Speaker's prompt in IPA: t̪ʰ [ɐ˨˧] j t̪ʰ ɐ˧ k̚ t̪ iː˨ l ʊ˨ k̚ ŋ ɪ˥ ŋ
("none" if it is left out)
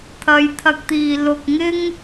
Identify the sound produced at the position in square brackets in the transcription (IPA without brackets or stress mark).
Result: ɐ˨˧